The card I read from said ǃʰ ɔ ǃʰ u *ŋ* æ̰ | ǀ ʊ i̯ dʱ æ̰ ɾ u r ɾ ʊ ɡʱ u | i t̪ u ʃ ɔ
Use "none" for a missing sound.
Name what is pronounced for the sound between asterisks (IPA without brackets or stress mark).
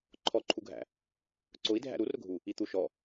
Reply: ɡʱ